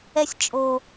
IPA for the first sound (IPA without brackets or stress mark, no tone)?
ɛ